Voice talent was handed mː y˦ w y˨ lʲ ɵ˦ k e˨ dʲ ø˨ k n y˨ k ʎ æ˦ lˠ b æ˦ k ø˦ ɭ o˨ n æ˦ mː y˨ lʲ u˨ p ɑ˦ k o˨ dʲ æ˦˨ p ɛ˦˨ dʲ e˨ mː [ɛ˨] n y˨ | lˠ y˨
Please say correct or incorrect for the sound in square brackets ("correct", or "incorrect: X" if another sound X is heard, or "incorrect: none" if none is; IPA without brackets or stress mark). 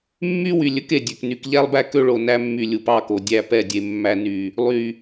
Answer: incorrect: æ˨